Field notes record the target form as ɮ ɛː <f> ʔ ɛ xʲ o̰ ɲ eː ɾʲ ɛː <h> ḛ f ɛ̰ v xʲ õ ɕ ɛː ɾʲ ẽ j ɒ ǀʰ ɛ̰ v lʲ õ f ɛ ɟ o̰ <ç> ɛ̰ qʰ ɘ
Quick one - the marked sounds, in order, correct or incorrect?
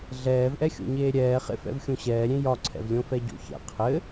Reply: incorrect: v, incorrect: χ, correct

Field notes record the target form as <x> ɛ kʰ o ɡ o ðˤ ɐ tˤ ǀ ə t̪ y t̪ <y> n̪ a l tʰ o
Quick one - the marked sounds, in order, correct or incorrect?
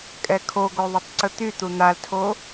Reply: incorrect: kʼ, incorrect: u

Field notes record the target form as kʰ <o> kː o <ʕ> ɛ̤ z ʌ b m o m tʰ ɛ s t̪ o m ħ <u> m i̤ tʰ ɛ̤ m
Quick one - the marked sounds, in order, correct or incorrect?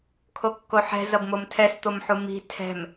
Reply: correct, incorrect: ħ, correct

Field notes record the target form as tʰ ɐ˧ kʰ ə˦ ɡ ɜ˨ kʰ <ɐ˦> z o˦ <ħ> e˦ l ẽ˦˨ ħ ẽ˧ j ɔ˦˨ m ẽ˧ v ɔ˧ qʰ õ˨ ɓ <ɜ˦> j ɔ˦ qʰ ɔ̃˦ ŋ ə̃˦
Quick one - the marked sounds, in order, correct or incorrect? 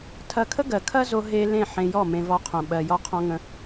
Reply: correct, incorrect: ɦ, incorrect: ɜ˧

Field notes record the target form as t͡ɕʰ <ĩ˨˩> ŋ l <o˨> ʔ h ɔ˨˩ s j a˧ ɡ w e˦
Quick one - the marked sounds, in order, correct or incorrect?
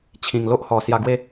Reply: correct, incorrect: o˦

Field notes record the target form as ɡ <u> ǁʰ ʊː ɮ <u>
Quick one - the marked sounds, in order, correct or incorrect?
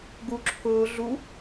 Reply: correct, correct

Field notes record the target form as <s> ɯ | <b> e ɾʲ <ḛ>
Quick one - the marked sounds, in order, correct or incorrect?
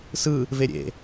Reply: correct, incorrect: v, correct

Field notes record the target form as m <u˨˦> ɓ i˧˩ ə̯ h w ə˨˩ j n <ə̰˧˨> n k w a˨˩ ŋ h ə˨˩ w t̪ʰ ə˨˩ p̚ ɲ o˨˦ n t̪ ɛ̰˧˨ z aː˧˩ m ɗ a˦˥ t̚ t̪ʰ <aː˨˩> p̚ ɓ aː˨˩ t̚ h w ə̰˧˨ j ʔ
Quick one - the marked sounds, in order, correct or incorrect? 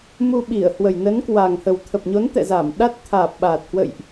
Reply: incorrect: u˧, incorrect: ə˨˦, correct

